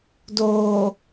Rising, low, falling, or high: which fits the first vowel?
low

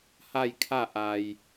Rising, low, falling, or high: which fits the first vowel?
falling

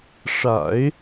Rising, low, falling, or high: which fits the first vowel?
low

